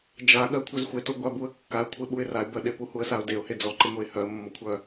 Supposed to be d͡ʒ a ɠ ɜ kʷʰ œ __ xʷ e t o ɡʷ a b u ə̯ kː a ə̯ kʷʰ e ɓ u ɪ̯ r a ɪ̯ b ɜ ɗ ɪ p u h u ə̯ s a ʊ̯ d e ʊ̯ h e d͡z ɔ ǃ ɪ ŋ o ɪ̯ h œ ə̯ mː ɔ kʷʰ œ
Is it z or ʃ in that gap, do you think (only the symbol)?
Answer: z